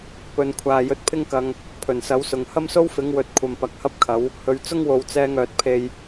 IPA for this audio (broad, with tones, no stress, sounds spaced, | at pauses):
p ɵ˨˧ n kʷʰ aː˨ j ɵ˨˥ t̚ pʰ ɪ˥ ŋ k ɐ˧ ŋ | pʰ ɵ˨˩ n s ɐ˨˥ w s ʊ˨ ŋ h ɐ˥ m s o˥ w f ɪ˨˥ ŋ w ɵ˧ t̚ kʷʰ ɐ˨ m p ɐ˨˥ k̚ h ɐ˥ p̚ kʰ ɐ˨˥ w | h ɵ˧ ɥ t͡s ʊ˥ ŋ w o˨˧ w t͡s ɛː˧ ŋ œː˨ t̚ pʰ e˧ j